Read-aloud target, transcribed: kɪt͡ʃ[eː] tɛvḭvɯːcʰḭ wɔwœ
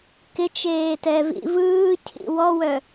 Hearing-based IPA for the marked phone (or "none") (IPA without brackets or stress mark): eː